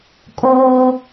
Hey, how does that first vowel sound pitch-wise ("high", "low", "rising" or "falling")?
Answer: high